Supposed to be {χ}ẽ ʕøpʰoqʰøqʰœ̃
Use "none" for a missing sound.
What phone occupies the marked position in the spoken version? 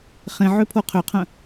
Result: χ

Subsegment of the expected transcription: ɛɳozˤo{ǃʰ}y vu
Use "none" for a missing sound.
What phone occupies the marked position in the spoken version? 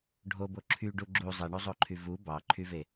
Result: ǃʰ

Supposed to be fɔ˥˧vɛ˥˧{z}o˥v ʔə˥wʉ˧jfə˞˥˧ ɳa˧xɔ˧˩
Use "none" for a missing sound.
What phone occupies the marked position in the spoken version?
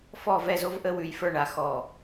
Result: z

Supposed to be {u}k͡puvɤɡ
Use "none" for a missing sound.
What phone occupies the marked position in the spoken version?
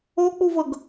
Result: o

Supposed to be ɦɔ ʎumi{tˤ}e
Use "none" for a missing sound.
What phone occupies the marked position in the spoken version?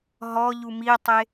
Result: tˤ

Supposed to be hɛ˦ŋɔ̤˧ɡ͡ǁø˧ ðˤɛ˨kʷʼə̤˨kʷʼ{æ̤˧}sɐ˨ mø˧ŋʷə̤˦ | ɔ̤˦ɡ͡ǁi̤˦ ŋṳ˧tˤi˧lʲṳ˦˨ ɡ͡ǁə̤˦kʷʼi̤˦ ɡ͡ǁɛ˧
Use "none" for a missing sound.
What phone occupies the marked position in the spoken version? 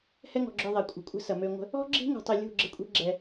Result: ə̤˧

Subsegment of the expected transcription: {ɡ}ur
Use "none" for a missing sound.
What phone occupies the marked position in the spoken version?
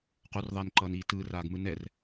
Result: q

